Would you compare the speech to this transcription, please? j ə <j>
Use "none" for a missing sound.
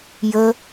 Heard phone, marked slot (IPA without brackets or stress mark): none